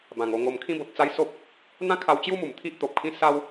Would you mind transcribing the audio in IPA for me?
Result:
bã˨˩ŋo˧ŋo˧m kʰĩ˦bo˨t̚t͡sa˦jso˦p̚ | n̪ã˦kʰa˧wt͡ɕju˦mu˨˩m t̪ʰi˦ʔt̪o˨p̚kʰĩ˦ sa˦w

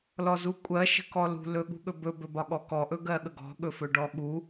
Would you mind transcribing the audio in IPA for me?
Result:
lɔzukʷʼɜ ʃə̤kɔlṳ lɵɠṳɠɵbɵ bɵbɒɠɔkɔ ʔɵɡɜɠəɡɔ̤ ɠɵfɵɖɔɠu

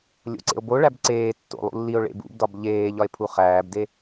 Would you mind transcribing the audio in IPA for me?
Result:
lʲo̰ǀḛo̯boɭæb ǀeː tːo̰lˠṵ lːio̯ɭḛ bṵbdɒb ʎeː ʎɒe̯pʰuχæːbde

